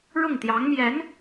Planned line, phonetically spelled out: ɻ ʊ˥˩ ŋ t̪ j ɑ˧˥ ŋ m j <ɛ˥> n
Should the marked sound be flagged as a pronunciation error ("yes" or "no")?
yes